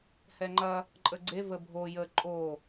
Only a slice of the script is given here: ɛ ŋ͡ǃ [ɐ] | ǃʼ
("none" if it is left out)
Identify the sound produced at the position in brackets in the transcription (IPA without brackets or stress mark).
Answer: ɐ